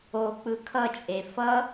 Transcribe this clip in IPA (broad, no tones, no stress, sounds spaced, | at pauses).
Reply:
o k͡p ɯ kʰ ʌ t͡ʃʼ e f ʌ